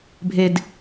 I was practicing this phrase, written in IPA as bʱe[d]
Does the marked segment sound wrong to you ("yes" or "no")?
no